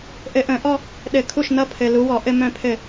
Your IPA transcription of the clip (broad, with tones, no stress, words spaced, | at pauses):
ʔɘ˧˩˧ʔə̃˧˩˧ʔɔ˥˧ | ɗɘ˧˩˧kʰu˥˩ʃnʌ˧˥˧ pʰɘ˩˧˩lu˨˦wɔ˧˩˧ ʔɘ˥˧mœ̃˥˧pʰɘ˥˩